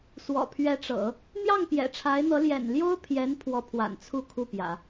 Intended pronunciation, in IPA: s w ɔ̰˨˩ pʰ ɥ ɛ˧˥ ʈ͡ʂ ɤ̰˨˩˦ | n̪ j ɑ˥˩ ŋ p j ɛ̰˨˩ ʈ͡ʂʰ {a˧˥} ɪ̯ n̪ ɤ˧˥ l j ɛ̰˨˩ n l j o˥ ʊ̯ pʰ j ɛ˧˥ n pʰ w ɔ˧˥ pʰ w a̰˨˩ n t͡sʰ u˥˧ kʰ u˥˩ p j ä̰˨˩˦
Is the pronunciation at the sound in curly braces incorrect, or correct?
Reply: correct